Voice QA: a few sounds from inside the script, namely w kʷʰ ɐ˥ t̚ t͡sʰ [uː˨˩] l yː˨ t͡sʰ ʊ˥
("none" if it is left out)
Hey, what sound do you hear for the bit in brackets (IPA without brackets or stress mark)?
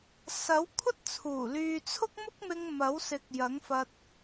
uː˨˩